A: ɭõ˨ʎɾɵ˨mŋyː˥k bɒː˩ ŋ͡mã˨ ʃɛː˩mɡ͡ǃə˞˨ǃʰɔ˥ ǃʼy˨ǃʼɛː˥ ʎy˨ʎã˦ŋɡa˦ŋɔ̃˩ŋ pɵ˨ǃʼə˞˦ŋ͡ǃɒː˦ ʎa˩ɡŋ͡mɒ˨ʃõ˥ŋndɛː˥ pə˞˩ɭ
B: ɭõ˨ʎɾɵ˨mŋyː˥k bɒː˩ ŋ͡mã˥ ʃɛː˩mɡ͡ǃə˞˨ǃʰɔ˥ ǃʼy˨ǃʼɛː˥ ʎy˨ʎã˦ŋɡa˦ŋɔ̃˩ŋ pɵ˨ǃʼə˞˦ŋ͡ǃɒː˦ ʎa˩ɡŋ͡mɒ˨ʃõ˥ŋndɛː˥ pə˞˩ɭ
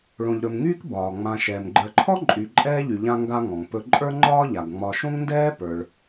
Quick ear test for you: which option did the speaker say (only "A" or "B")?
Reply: A